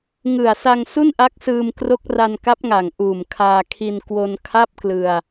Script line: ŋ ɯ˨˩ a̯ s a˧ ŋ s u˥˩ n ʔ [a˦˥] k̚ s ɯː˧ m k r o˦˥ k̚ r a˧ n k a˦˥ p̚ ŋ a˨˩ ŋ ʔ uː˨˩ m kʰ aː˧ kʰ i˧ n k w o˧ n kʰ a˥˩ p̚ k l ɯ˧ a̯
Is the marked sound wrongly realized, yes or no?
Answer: no